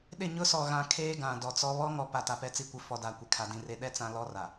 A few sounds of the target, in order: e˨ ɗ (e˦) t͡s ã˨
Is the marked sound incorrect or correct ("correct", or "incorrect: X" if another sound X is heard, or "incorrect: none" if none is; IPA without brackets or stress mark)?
incorrect: ɛ˦